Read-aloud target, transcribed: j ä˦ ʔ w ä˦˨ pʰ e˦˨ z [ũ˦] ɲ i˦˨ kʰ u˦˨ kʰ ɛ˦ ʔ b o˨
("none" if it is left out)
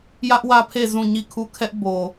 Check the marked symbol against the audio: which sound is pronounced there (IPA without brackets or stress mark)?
ũ˦˨